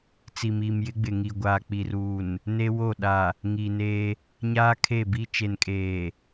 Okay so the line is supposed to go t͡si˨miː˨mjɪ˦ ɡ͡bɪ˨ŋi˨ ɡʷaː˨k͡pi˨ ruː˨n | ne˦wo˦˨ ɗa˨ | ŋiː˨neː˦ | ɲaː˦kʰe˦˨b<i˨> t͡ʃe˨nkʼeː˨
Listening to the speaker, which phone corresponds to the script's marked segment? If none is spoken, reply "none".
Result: i˦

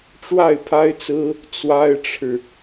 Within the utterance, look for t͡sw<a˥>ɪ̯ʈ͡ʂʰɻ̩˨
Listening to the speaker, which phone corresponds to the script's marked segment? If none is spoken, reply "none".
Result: a˥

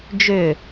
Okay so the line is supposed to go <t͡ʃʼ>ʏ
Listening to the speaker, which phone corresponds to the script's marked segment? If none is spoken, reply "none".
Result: d͡ʒ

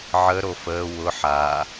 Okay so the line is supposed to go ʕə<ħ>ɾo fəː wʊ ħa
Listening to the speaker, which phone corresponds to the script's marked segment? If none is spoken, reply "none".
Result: none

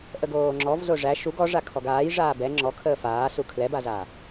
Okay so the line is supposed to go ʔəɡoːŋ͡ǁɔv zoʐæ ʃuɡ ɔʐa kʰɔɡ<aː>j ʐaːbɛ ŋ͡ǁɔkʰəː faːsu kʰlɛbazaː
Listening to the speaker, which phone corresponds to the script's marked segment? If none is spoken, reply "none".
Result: aː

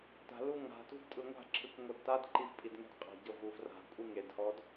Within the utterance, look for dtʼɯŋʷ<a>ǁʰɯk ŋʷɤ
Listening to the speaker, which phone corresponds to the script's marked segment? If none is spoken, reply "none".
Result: a̤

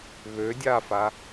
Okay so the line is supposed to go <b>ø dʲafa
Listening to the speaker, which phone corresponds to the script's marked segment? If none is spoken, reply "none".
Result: β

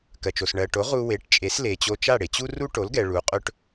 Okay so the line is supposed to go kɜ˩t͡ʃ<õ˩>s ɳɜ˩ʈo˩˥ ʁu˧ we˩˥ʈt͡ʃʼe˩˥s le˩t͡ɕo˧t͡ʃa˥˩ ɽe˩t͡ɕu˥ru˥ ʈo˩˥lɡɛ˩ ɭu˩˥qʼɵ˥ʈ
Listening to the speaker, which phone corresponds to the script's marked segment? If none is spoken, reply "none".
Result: o˩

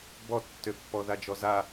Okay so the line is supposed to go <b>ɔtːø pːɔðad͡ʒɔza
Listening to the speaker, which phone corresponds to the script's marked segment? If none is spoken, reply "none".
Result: b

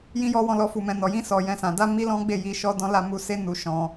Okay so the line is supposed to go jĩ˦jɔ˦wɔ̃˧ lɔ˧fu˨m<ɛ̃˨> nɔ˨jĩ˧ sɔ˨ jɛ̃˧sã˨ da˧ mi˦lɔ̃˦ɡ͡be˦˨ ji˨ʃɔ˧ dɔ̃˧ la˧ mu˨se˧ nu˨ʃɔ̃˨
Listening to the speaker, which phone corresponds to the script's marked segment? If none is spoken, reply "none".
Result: ɛ̃˨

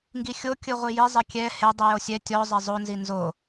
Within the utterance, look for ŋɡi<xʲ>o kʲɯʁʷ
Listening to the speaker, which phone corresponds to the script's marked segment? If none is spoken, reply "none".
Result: xʲ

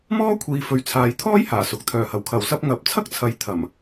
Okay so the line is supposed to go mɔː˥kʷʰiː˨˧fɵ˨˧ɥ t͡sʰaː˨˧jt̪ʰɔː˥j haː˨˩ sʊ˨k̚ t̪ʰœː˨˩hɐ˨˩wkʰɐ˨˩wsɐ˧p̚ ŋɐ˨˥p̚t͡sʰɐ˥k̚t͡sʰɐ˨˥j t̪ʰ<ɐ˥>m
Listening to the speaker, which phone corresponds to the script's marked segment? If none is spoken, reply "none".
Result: ɐ˨˩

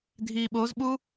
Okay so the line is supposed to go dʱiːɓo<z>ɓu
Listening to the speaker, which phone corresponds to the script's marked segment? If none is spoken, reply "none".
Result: z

